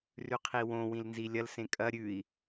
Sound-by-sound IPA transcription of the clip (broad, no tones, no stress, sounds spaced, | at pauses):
r ʉ qʰ i w õ w ĩ l n z i lʲ ɐ l s ẽ kʼ ɐ ɾʲ ʉ i̯